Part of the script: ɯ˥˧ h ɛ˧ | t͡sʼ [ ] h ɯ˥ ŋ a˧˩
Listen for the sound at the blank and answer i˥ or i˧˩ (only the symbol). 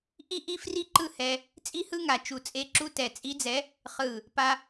i˥